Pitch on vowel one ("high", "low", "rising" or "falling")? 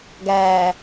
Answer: low